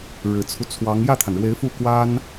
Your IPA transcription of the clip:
ɻɻ̩˨˩t͡sʰu˦t͡sʰwɑ˧˥ŋ jä˥˩t̪ʰa˩nɻwe˧˥ɪ̯ fu˥˩kwa˥n

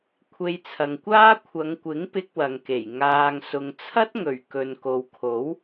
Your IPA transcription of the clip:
kʷʰe˧jt͡sʰɐ˨ŋkʷaː˥ kʷʰɐ˨˧ŋkʷɪ˨˥ŋpɪ˧k̚ wɐ˨ŋke˨˩j ŋaː˨ŋsʊ˨ŋ t͡sʰɐ˥t̚ŋɵ˨˩ɥ kɵ˨nko˨wkʰo˨˥w

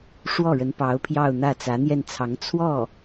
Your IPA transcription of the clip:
ʂwɔ˥˩ɻə˧˥n pɑ˧˥ʊ̯pʰjɑ˥˧ʊ̯ n̪ä˥˩t͡sä˧˥n̪jɛ˥˩nt͡sʰɑ˧˥ŋ t͡sʰwɔ˥˩

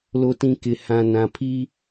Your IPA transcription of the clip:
lo˨tĩ˨ kɪ˨ hã˨nã˨ pʰi˦

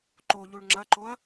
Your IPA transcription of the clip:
ǃo ʎuɭŋ͡ǁɐǃoɐ̯

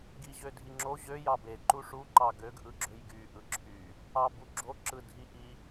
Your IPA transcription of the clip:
ɡiʑødʱiŋ͡ǁo ʑø jɑbe ǃuʂu ǃɑɡøɡ ʔɯɡ͡ǁøjɡy ʔɯǁʰy | ɑbuɡ͡ǁo ǁɯdʱiʔi

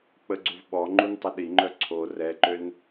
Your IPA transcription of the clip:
k͡pəɡ͡ǀuvɓɔŋ͡ǃun tˤəɗiŋ͡ǃœ ǀʰo rɛǃøn

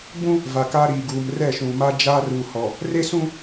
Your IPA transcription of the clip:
ɡ͡bũ˦ | va˨kaː˦ɾiː˨ɡuː˨m rɛ˦˨ʃũ˨ma˦ d͡ʒaː˦ruː˨hɔ˨ | re˦sũ˦

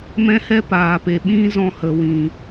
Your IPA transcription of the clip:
mɛ̃˦hɛ˦paː˨pe˨ ɓĩ˦zɔ̃˧ hə˨wĩ˨

